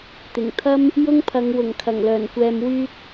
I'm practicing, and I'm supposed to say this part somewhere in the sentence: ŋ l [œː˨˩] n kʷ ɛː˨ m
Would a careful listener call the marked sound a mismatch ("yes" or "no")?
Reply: no